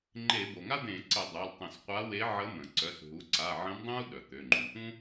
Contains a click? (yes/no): yes